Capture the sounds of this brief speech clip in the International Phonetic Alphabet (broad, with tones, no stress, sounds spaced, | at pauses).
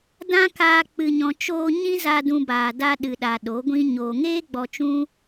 d ã˦ k aː˧ k͡p ɨ˨ ɲ ɔ̃˨ t͡ʃ oː˧ ɲ ĩ˦ z a˧ d ũ˧ b aː˨ d a˧ ɗ ɨ˨ ɗ a˨ ɗ o˨˦ ɡʷ ĩ˦ ɲ oː˨ ŋ eː˦ ɡ͡b ɔ˧ t͡ʃ ũ˦